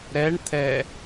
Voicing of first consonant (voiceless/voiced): voiced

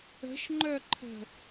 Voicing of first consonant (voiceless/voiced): voiceless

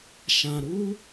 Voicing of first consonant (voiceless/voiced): voiceless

